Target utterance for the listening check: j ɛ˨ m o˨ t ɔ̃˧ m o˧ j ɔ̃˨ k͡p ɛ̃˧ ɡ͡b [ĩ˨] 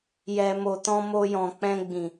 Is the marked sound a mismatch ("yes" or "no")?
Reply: no